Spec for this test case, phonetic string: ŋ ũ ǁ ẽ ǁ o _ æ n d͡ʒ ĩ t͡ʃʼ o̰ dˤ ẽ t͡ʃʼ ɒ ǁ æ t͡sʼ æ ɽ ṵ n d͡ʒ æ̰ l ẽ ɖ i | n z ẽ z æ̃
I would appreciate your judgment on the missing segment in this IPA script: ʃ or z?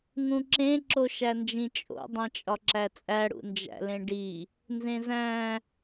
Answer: ʃ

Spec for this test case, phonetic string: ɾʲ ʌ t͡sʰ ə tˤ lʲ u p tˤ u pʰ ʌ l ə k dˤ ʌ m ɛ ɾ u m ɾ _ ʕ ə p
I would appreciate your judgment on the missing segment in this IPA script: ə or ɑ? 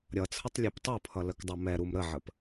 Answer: ə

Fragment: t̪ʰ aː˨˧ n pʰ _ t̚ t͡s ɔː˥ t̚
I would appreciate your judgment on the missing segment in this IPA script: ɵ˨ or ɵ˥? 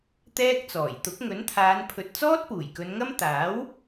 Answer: ɵ˨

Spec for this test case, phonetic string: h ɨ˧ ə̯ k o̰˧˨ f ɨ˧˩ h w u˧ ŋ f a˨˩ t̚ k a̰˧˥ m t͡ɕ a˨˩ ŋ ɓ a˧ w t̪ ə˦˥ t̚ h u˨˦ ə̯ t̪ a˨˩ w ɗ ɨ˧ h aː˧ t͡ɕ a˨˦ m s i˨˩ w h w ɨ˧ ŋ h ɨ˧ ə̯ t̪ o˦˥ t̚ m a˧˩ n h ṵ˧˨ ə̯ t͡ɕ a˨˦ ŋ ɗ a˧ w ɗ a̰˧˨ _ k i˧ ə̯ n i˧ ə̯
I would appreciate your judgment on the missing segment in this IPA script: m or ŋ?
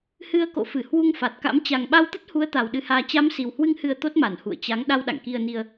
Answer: ŋ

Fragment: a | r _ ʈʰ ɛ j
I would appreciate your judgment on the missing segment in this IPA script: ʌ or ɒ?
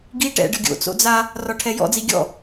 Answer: ɒ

